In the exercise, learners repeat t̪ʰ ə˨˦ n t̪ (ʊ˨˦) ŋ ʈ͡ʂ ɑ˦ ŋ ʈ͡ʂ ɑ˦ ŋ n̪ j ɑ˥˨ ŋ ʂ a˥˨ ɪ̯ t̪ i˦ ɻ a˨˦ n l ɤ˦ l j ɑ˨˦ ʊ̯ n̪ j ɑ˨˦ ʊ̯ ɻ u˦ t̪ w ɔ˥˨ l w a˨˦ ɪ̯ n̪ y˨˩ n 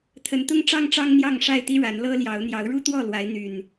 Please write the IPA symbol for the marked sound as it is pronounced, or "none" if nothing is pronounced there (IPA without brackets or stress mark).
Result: ʊ˦